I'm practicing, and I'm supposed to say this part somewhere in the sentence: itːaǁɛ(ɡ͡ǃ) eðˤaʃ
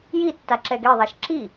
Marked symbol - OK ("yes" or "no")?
no